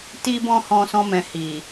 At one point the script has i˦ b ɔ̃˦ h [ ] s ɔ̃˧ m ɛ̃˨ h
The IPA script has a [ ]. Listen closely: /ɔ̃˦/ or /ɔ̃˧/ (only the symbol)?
ɔ̃˧